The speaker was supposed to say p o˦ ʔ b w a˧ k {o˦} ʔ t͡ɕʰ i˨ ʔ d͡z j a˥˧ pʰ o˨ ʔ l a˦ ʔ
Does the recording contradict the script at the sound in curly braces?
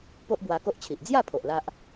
no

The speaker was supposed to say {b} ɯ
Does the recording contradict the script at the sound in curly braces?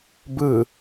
no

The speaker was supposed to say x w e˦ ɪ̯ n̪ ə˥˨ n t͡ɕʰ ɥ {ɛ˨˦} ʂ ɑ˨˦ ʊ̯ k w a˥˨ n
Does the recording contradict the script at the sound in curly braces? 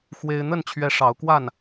no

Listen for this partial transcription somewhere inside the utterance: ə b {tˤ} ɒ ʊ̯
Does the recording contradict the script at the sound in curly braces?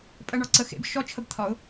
yes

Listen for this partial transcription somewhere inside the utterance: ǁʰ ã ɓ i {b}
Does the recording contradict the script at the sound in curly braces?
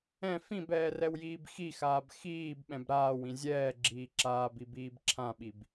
no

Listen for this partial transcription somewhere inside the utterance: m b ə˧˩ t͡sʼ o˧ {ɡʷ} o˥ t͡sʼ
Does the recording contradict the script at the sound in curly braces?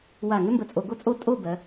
yes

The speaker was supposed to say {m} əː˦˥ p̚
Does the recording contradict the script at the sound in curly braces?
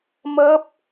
no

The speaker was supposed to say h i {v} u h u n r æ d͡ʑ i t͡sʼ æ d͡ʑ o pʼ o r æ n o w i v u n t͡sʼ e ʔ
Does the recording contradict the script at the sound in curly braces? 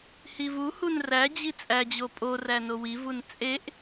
no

